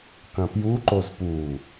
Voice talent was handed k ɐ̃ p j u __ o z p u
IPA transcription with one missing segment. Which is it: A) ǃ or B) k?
A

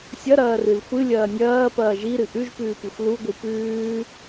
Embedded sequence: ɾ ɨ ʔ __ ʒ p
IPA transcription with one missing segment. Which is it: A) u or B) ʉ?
B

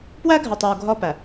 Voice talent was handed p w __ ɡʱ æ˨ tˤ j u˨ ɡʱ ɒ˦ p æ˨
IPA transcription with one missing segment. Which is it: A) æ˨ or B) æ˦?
B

